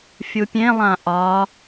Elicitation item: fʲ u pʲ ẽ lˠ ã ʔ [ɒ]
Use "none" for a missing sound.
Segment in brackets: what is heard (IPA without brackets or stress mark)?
ɒ